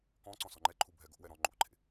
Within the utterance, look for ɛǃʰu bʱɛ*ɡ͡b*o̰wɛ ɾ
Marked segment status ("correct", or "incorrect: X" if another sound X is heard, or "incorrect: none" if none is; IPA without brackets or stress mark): incorrect: ɡ